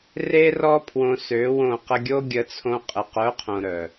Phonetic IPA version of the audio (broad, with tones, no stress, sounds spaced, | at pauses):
r e˦ r ɔ˦ pʰ w õ˧ s ø˨˦ w õ˦˨ q ə˧ ɡʲ o˦ ɡʲ ə˧ t͡sʰ õ˧ qʼ ə˨ q œ˨˦ qʰ õ˨ ɾ œ˨